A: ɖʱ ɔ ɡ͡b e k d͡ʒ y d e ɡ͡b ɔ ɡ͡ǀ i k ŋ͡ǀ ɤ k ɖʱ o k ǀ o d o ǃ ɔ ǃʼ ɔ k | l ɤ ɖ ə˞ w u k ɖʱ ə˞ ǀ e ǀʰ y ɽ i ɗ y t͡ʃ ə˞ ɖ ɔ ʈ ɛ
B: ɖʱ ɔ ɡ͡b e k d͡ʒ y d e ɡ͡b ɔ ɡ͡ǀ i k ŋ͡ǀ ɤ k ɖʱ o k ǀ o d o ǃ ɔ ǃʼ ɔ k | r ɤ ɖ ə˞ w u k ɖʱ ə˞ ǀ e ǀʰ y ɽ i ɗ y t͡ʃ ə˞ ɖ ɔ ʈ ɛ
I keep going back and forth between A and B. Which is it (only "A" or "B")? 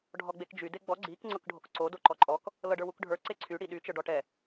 A